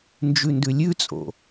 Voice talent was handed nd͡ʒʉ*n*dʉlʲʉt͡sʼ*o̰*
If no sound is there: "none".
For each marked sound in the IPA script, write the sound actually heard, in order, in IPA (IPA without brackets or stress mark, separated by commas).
n, o̰